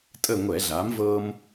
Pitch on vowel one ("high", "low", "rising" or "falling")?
falling